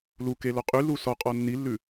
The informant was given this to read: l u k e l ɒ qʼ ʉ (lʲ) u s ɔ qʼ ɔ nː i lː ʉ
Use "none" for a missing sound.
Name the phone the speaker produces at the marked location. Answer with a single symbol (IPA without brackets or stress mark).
l